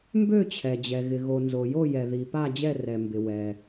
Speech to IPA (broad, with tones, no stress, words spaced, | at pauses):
mbø˦˨t͡ɕʰɛ˩d͡ʑɛ˩ ɣɪ˩ɣo˩ nzo˩jo˦˨jɛ˩ ði˩ pa˦˨d͡ʑɛ˦˨ rɛ˩mbɪ˩wɛ˩